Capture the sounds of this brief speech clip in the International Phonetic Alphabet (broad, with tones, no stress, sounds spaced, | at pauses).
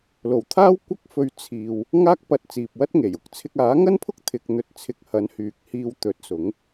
l o˨˩ w t̪ʰ aː˥ w kʷ ɐ˥ k̚ f ɵ˧ ɥ t͡sʰ iː˨ w | ŋ aː˥ k̚ p ɐ˧ t̚ t͡s iː˨ p̚ w ɐ˥ t̚ ŋ e˨˩ j ʊ˨ k̚ t͡sʰ ɪ˧ k̚ aː˨˥ ŋ ɐ˥ n pʰ ʊ˥ k̚ t̪ʰ ɪ˧ k̚ n̪ ɵ˧ t̚ t͡sʰ ɪ˧ k̚ h ɐ˨˥ n h yː˨˥ k̚ h iː˧ w t̪ ɵ˨˥ t̚ s ʊ˨˥ ŋ